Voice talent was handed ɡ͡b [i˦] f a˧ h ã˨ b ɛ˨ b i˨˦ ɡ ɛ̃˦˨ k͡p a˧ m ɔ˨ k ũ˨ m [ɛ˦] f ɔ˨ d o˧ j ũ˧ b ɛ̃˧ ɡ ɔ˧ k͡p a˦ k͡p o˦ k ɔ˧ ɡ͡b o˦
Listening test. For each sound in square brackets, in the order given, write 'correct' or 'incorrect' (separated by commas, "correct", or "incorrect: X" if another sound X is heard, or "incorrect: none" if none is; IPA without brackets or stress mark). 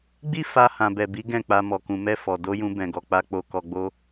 correct, incorrect: ɛ˧